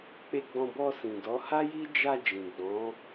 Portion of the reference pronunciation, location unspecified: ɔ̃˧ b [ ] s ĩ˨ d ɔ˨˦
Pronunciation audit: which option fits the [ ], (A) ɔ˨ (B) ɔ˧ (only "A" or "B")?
B